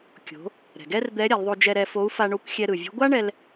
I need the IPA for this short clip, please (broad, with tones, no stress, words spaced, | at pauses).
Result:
kʲo̤˩˧ | ɾɛ̤˩ɡɛ˥rd̪ɛ˧˥ɾʲa˩˧l ðˤo˧d͡ʒɛ˧ɾɛ˧fo˧˥u̯ fa˧ɳo˧˥kʷxʲɛ˧ ɾɯ˩vʲo̤˧˥ ɡʷa˥ɳɛ˧l